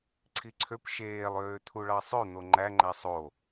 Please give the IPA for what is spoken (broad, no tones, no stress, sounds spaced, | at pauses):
ǀʰ i ǀʰ ø p ʃ eː lˠ øː t̪ʰ u ɭ ɑ sˤ ø n̪ o ŋ͡ǃ æ ŋ͡ǃ æ sˤ o